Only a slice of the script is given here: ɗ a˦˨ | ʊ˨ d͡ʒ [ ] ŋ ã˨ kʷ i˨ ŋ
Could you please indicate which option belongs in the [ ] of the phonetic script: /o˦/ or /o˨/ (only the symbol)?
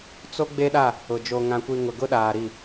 o˨